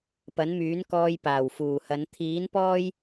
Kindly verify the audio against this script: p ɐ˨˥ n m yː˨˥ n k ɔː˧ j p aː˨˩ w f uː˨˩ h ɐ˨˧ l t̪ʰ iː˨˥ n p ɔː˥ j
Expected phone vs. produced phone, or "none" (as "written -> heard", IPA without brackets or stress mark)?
l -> n